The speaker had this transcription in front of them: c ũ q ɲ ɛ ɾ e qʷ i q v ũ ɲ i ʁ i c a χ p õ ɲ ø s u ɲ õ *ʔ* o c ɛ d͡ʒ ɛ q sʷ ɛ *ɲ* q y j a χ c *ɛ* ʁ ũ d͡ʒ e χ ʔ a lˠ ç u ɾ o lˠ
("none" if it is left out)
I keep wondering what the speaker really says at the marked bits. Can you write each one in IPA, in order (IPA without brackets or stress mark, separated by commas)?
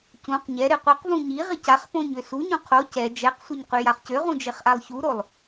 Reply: qʰ, ɲ, ø